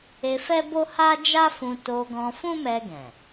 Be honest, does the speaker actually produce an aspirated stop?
no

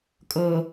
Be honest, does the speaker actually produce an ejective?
yes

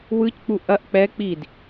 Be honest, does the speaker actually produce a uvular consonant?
no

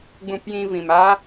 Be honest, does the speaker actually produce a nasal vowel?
yes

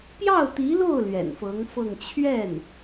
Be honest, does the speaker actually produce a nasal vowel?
no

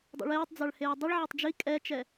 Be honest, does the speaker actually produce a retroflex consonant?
yes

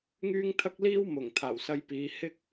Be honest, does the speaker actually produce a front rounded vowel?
yes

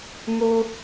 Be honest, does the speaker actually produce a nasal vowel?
no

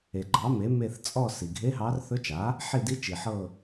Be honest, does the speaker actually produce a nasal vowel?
no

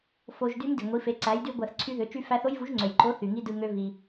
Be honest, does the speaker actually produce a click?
yes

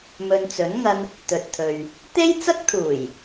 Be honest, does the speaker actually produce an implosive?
no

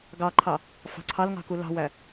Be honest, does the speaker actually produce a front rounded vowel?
no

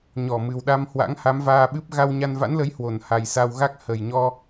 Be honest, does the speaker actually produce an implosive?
yes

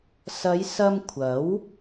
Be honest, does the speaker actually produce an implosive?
no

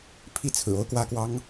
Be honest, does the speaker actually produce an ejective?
no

